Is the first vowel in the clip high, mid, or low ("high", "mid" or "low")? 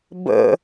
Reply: mid